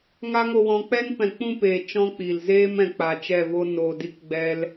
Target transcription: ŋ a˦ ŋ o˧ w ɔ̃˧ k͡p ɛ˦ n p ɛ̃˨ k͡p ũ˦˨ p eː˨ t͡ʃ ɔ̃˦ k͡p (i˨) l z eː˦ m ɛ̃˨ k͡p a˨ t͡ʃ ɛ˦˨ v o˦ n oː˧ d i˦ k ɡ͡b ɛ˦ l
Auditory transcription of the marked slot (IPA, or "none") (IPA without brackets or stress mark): i˨